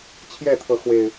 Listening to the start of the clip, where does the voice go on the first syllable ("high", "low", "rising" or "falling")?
falling